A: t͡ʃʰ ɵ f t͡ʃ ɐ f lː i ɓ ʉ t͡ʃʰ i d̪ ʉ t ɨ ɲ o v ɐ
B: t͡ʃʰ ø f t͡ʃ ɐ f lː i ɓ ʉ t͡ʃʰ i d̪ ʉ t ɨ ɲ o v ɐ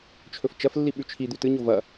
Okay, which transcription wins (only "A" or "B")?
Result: A